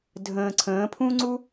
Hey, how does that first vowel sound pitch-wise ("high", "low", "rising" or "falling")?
low